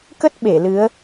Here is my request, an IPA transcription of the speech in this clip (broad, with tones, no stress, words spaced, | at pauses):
kə˦˥t̚ ɓe˧˩lɨ˨˦ə̯